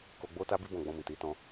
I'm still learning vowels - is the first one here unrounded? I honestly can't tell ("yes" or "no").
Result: no